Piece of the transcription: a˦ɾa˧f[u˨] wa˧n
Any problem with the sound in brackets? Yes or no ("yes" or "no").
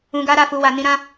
yes